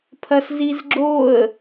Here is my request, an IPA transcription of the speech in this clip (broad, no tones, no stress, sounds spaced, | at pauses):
pʰ ɐ s z i z ɡ͡ǁ o ə̯